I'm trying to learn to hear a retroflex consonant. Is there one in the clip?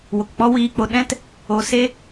no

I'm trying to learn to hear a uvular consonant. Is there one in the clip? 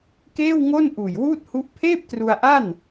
no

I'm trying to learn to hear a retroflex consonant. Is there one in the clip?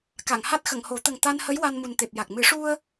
yes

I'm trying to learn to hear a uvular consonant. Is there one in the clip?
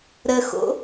no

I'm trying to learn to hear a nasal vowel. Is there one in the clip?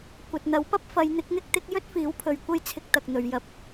no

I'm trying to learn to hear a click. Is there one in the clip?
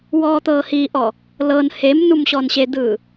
no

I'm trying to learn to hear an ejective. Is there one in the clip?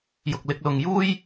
no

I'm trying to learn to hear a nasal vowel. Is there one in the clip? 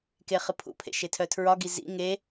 no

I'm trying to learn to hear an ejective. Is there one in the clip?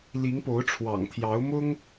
no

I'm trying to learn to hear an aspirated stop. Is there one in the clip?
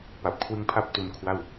yes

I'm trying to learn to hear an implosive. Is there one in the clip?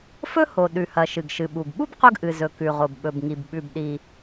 yes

